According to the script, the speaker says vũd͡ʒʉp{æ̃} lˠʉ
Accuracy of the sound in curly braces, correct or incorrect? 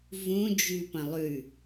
incorrect